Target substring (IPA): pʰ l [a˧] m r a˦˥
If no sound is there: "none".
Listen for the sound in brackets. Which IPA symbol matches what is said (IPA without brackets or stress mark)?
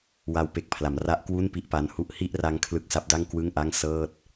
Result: a˩˦